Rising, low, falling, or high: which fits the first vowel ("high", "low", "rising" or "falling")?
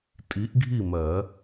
rising